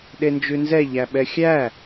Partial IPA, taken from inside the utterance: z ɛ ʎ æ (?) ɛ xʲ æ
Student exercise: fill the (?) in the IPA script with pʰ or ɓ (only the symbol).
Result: ɓ